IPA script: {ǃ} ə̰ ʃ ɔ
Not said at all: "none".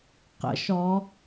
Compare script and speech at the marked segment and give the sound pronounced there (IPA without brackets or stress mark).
q